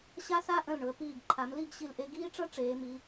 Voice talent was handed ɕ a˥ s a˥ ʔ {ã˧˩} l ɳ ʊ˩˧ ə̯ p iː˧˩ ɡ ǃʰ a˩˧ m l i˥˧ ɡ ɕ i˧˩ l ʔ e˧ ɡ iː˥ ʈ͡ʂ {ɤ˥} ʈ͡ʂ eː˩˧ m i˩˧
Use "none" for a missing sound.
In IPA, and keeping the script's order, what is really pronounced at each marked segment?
ə̃˧˩, ɤ˥

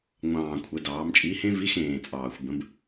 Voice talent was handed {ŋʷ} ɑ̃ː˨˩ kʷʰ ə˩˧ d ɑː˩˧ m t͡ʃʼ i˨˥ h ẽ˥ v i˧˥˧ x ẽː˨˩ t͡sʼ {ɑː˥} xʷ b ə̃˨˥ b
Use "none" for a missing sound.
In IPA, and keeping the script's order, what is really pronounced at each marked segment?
ŋʷ, ɑː˨˩

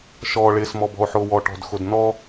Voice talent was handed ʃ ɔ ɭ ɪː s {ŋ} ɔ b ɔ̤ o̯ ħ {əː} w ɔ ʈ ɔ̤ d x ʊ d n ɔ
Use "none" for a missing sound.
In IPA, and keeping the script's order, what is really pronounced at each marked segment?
m, ʊː

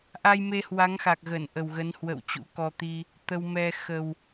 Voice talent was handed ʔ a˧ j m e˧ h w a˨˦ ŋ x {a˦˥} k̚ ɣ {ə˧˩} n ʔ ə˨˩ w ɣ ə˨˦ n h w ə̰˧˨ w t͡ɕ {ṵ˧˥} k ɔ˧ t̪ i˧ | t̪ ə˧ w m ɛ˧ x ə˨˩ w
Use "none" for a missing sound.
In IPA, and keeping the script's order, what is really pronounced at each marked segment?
a˨˩, ə˧˩, ṵ˧˥

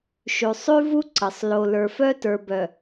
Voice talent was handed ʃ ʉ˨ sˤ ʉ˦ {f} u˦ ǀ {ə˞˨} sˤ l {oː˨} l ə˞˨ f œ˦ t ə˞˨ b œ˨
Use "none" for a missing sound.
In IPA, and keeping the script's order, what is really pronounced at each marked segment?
v, ə˨, o˨

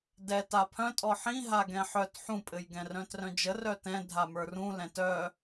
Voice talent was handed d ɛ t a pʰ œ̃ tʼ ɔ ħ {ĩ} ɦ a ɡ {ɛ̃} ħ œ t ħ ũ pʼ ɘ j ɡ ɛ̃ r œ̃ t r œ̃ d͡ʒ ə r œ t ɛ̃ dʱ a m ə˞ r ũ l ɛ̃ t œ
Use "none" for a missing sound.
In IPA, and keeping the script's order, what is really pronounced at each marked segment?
ĩ, ɛ̃

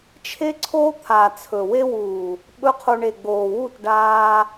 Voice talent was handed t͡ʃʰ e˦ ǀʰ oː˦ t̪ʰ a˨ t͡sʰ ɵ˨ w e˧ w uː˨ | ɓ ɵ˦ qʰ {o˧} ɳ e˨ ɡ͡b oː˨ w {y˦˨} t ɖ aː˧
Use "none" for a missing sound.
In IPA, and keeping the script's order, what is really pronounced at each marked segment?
o˧, u˦˨

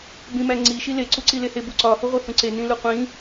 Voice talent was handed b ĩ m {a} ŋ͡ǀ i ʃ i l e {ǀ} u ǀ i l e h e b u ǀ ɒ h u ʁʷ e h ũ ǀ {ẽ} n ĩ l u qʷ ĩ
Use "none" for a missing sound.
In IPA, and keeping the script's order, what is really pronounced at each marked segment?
æ, ǀ, e

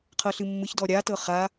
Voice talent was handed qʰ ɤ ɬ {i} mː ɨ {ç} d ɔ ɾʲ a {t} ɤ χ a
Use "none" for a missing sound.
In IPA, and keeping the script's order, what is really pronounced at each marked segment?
ɨ, ç, t

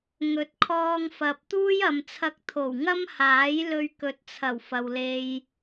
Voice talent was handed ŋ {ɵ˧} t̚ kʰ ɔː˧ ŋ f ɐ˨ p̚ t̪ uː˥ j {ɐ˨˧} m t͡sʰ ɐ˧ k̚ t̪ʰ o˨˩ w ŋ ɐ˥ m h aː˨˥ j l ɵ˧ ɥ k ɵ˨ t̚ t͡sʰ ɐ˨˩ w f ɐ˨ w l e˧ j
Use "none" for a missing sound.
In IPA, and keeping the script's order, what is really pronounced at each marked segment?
ɵ˨˥, ɐ˨

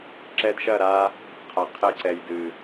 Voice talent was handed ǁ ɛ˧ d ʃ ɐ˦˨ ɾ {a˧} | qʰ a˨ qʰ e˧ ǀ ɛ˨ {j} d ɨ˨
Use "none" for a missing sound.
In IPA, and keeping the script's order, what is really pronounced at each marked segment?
a˧, j

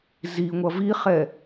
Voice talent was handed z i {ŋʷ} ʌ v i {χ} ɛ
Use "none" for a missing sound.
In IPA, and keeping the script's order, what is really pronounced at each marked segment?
ŋʷ, χ

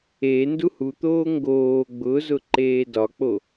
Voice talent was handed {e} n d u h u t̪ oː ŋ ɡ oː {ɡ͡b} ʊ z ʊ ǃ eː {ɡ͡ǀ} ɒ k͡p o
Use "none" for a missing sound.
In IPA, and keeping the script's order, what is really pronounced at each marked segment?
e, ɡ͡b, d

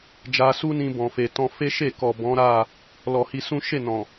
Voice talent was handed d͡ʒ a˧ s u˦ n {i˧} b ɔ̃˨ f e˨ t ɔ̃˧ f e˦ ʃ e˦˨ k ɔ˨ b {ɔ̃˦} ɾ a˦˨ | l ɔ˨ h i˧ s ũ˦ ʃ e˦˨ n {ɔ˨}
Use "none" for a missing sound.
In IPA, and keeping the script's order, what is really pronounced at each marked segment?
ĩ˧, ɔ̃˨˦, ɔ̃˨

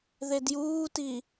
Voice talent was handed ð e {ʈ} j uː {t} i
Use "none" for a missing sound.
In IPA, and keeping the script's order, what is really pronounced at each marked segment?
d, t

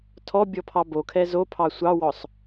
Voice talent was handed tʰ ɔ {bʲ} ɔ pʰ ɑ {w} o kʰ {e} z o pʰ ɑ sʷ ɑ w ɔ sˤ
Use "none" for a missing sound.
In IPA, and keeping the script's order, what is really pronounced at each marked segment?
bʲ, b, ɛ

